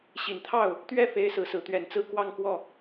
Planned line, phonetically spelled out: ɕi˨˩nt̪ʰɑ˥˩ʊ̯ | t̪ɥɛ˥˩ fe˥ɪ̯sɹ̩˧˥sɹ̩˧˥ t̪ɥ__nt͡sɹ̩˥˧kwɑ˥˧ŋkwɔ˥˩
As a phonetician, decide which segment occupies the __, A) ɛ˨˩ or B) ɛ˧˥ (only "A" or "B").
A